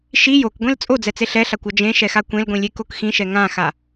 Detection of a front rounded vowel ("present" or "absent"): absent